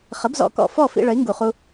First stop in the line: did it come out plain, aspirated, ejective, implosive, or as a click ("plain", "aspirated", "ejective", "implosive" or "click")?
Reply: plain